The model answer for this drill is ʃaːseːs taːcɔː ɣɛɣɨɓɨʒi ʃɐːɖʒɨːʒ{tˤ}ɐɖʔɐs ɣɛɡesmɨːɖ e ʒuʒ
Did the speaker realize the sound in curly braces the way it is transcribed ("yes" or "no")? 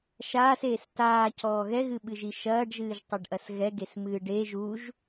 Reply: yes